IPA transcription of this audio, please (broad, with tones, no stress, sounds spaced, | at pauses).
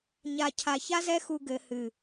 ɲ a˧ cʰ a˧ ç a˦ z ɛ˦ x u˧ ɡ ɘ˨ h ɨ˨